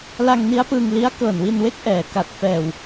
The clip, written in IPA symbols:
la˧ŋni˦˥a̯pɯː˧ŋli˦˥a̯ kɤː˨˩nwi˧nwe˦˥k̚ ʔɛː˨˩ ka˨˩t̚fɛː˨˩w

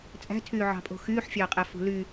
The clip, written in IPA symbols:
t͡sʼæ̤tʰyːʕɑ̤pʼo̤ xyːħfʲɑːqʼæfṳ ly

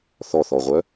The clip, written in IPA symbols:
θɔθɔʁʷœ

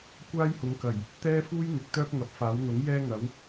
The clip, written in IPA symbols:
kʷaː˥jhʊ˨˧ŋkɐ˨˩j | t̪ɛː˥ fuː˥j n̪ɪ˨˥k̚t̪œː˥k̚ŋɐ˨˥p̚faː˨˥w n̪ʊ˨˥ŋ jɛː˥ŋɐ˨˥w

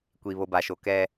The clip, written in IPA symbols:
kʷi˨βo˨ba˨ʃo˨ kɛ˦

